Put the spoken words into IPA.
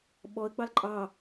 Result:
ɓ ɔ ə̯ ɡ͡b ɑ l ǃʼ ɑ

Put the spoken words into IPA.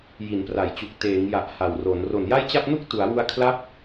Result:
j i˩˦ n p r a˩˦ j t͡ɕ u˨˩ k̚ t eː˩˦ ŋ j a˨˩ ʔ h a˨˩ w r o˩˦ n r o˨˩ n j a˥˩ j t͡ɕ a˥˩ p̚ n u˥˩ k̚ t u˩˦ a̯ w u˧ a̯ kʰ l a˦˥ p̚

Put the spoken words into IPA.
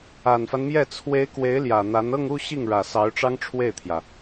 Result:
a˨˩ n f a˦ n m j ɛ˥˩ t͡sʰ w e˧˥ ɪ̯ k w e˧˥ ɪ̯ l j ä˨˩ n̪ a˧˥ n ɤ˥˧ ŋ u˥˧ ɕ i˥˩ ŋ ɻ ä˨˩ s ɑ˧˥ ʊ̯ ʈ͡ʂ ɑ˥ ŋ ʈ͡ʂʰ w e˥˩ ɪ̯ t̪ʰ j ä˩

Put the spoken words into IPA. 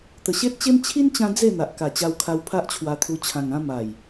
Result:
t̪ ə˨˩ ɕ e˦ t̚ t͡ɕ e˦ m t͡ɕʰ i˦ n t͡ɕ ã˧ d͡z e˥˧ n̪ a˨ ʔ k a˨˩ t͡ɕ a˧ w kʰ a˧ w pʰ a˦ ʔ t͡ɕʰ w a˧ t̪ʰ u˧ t͡ɕʰ ã˨˩ ŋ ã˧ m a˨˩ j

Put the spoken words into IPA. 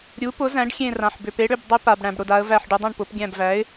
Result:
ɾʲ u˩˥ p ʊ˩˥ z æ̃˩˥ ɖ xʲ ẽ˧˩ r ã˩ ħ b ʏ˩ p e˩˥ ɽ ʏ˧˩ b dˤ ʏ˦ p a˩ b ɽ æ̃˩ b ɽ ʊ˧˩ d a˩˧ ə̯ v æ˧˩ ħ ɖ ʊ˩˧ dˤ ã˧˩ ɳ p ʊ˩˧ p ɡʲ æ̃˧˩ b v æ˩˥ ɪ̯

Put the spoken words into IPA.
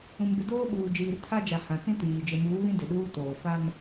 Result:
ũ˨ m b ɪ˨ d oː˦ ɓ uː˨ d͡ʒ iː˨ r tʰ a˦ d͡ʒ a˨ h ã˨ t͡s ĩ˦ t iː˨ d͡ʒ ɪ˨ m uː˨˦ β ĩ˦ d ɪ˨ ɗ uː˦ t oː˨ f a˦ m

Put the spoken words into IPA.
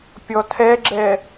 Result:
pʲ ɔ tʰ ɛ ɡ͡ǁ ɛ

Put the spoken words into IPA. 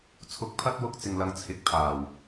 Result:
t͡sʰ ʊ˨˥ k̚ pʰ ɐ˧ t̚ w ʊ˥ k̚ t͡s ɪ˧ ŋ l ɐ˧ ŋ t͡sʰ ɪ˨˥ k̚ pʰ aː˨˩ w

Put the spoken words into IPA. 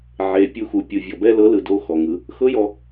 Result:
ʕ e˨ pʲ u˧ x u˨ pʲ ɯ˨ vʲ ɔ˨ b ɛ˧ l ɤ˨˦ l ɯ˨ d o˧ x ɔ˨ ŋ ɯ˧ | x ɤ˦ j ɔ˧

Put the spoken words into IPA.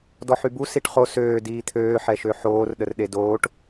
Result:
d ɔ ħ y b u s i ʈ χ o s øː d iː t̪ʰ øː ħ ɛ ʃ ø ħ oː r ɗ ə r ɗ e d oː ʈ

